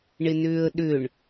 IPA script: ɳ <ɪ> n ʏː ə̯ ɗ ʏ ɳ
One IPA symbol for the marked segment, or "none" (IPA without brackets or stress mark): ɪ